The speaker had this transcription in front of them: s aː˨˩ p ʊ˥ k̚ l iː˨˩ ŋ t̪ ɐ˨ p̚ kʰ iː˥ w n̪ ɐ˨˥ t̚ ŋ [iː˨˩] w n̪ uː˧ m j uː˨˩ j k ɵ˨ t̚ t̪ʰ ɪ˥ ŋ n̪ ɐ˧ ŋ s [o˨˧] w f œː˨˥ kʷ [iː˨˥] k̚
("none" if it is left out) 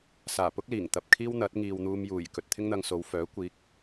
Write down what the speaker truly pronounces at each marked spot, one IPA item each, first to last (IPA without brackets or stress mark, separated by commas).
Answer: iː˨, o˨˧, iː˨˥